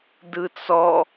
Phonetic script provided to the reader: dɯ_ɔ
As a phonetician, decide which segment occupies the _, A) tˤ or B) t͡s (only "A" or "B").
B